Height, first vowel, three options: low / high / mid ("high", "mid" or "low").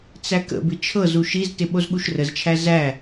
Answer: low